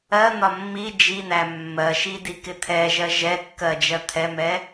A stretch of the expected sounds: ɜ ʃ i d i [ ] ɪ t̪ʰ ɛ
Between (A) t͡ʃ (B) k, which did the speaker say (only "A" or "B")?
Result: B